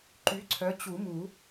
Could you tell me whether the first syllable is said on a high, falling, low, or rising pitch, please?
rising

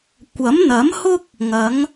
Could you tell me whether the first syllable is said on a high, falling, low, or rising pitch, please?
rising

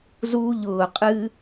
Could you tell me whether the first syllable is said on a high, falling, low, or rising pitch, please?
high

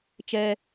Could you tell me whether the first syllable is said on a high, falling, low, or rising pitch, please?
low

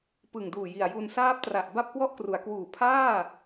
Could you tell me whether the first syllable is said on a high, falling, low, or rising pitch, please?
low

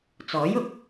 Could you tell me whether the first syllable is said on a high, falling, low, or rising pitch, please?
rising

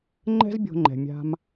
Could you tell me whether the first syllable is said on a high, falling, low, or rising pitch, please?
high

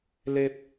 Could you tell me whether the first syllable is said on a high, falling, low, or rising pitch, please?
high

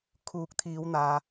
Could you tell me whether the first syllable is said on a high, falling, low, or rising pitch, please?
rising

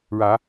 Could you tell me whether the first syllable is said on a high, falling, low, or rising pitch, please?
rising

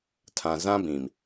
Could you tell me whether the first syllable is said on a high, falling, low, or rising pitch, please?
low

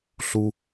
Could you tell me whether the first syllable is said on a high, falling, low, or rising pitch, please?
high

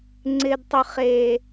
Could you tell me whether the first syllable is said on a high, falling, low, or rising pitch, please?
low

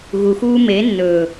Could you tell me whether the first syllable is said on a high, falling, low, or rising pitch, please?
low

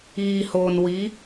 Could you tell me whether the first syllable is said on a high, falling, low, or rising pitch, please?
low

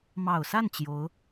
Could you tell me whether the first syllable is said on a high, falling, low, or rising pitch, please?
low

